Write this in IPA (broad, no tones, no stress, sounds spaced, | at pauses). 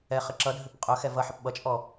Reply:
ɛ χ ə ǁ ʌ dʱ ʏ p qʼ œ x ɛ v ʌ ħ ə p ɓ ʌ t͡ʃʼ ɔ